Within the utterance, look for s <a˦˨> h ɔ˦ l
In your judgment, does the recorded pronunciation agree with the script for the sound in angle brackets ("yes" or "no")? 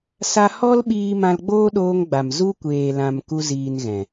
no